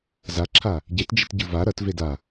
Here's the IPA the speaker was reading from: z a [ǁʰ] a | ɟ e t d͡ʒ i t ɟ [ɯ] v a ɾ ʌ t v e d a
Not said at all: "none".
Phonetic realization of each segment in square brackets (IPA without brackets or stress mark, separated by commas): ǁʰ, ɯ